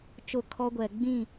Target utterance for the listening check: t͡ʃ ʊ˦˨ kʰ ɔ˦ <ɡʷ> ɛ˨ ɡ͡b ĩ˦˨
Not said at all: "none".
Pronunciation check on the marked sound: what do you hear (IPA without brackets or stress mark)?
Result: ɡʷ